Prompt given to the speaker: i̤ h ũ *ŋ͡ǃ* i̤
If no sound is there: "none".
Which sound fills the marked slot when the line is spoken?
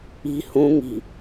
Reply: ŋ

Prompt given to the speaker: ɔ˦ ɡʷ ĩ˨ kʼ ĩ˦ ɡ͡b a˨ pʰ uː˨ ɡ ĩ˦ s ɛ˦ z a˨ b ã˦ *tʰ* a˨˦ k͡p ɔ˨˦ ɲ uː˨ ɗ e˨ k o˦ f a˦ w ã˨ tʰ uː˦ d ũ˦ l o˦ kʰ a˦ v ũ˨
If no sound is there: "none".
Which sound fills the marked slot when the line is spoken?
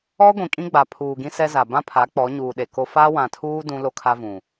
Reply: pʰ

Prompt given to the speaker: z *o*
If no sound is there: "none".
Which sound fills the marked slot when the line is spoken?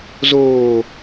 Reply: oː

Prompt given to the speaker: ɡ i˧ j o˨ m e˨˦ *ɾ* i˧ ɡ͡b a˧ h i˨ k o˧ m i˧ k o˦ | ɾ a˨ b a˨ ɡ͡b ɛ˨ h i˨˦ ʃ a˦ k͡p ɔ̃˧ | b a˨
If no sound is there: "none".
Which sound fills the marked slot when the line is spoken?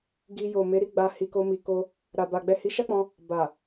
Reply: ɾ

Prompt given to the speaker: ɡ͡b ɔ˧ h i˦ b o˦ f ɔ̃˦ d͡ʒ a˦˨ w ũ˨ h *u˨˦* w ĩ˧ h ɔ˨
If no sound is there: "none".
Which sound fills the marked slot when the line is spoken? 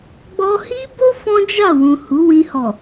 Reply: u˨˦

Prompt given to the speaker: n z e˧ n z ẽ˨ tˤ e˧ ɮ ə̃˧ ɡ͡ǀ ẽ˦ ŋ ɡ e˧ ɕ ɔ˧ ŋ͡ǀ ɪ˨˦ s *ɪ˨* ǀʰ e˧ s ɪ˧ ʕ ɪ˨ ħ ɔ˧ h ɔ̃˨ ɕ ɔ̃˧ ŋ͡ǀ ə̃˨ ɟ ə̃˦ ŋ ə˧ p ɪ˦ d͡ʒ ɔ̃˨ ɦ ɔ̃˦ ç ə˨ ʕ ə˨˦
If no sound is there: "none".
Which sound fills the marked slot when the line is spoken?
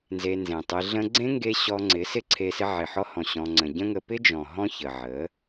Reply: ɪ˦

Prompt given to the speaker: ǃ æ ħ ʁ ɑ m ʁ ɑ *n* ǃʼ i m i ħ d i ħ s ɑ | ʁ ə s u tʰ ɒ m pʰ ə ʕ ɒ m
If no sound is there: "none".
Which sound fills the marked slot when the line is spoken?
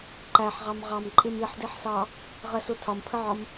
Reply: m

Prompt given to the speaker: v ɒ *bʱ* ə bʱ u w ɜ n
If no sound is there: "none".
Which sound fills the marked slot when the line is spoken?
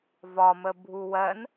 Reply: m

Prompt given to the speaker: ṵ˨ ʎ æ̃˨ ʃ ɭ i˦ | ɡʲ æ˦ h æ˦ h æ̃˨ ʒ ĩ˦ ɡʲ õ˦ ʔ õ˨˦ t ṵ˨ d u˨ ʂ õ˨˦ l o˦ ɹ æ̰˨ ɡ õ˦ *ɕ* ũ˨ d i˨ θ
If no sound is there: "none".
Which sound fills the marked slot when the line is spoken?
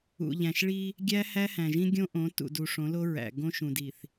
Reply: ʃ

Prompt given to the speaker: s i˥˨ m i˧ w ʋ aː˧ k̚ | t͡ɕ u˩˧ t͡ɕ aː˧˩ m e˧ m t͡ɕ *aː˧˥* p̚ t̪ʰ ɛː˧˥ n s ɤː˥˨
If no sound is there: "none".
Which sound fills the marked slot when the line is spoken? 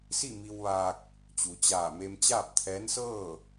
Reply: aː˥˨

